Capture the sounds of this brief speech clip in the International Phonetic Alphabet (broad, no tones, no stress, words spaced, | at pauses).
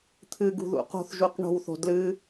t̪ʰɨɡṳðṵ qo̤θʒuq ɳo̤wθo̤ dlɨ